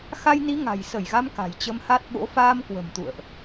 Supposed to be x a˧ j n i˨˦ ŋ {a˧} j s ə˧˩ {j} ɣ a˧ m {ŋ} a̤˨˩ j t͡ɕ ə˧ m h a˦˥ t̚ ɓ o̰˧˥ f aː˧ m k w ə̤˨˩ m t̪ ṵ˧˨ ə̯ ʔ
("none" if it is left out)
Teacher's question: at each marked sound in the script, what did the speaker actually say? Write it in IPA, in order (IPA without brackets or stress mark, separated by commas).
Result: a̤˨˩, j, k